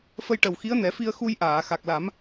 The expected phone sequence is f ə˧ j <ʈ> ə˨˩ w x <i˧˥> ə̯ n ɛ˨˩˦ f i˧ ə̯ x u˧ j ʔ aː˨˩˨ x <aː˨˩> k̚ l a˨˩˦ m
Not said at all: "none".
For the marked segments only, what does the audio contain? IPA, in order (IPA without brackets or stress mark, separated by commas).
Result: ʈ, i˧˥, a˨˩